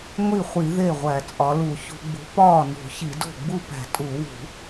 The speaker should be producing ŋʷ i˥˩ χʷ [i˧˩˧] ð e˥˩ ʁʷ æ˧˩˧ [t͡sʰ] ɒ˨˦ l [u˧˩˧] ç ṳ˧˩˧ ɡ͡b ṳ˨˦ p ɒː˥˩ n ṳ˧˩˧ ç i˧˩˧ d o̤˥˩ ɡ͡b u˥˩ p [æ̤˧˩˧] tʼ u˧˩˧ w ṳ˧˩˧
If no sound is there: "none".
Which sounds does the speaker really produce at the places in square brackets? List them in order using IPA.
i˧˩˧, t͡sʼ, u˧˩˧, æ̤˧˩˧

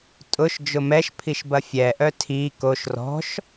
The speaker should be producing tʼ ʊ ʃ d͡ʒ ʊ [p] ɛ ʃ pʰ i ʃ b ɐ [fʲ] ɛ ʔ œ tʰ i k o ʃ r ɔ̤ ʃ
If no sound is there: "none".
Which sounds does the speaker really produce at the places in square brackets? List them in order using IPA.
m, fʲ

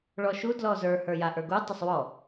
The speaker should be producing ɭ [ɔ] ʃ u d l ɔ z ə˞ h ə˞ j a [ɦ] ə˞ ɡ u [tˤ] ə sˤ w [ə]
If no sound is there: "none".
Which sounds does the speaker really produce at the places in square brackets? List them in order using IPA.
ɔ, ʔ, tˤ, ɔ

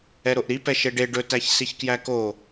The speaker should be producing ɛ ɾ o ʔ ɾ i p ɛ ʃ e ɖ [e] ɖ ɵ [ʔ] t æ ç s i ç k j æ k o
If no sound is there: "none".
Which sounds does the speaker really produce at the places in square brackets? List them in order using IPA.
e, none

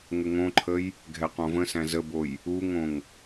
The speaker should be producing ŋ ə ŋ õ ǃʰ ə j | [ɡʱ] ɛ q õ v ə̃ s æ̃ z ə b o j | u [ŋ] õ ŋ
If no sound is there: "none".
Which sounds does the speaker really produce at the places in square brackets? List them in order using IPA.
ɡʱ, ŋ

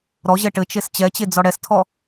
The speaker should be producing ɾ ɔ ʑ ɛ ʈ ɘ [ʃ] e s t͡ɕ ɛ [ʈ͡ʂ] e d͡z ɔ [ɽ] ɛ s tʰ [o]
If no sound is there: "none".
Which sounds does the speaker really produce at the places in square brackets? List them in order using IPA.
t͡ʃ, t͡ɕ, ɽ, ɔ

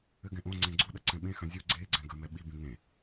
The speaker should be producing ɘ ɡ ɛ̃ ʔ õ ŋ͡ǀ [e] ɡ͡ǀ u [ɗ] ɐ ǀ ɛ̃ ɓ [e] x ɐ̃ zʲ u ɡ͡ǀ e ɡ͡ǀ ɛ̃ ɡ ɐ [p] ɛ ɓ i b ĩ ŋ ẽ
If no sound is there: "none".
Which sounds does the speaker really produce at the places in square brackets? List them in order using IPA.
ẽ, ɗ, ẽ, m

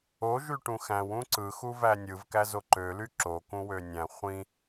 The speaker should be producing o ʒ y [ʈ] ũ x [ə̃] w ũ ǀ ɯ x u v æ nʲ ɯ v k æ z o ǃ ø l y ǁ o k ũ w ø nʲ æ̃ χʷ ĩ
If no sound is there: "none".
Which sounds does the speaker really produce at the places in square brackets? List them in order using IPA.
ʈ, æ̃

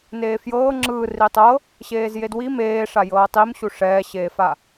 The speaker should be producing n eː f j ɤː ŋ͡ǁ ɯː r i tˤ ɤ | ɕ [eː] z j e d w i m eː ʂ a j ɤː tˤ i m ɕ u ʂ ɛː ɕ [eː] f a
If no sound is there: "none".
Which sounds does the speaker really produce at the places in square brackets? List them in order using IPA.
eː, eː

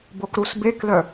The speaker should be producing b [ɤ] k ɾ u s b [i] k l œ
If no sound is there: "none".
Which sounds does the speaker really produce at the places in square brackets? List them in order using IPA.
o, e

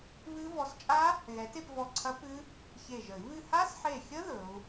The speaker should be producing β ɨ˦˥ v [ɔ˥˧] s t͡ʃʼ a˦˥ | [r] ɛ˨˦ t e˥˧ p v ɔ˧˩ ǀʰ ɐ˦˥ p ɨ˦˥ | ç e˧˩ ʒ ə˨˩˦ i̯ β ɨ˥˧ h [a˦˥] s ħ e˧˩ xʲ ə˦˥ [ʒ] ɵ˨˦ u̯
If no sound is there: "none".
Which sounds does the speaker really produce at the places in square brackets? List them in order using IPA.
ɔ˨˦, ɣ, a˦˥, ð

